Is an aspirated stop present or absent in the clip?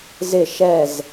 absent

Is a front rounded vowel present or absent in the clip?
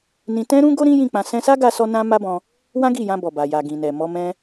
absent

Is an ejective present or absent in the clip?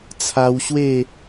absent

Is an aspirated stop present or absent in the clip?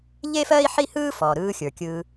absent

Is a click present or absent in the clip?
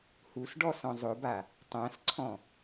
present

